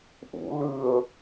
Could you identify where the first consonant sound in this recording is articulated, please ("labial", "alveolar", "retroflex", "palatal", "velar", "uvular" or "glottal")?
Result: glottal